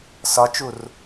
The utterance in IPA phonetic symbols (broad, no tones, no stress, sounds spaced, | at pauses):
s ɒ t͡ʃ u r